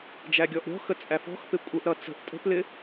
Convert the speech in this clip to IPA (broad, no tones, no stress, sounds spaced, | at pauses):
d͡ʒ æ ɡʲ ɔ ʔ ɾʲ ɔ̤ x ə t͡sʼ æ f ɔ̤ x p ɪ kʷʼ ə ʔ ɾ ʌ t͡s ə̤ ʔ tʼ ə̤ p l ɪ